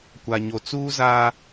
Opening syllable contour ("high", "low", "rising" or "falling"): low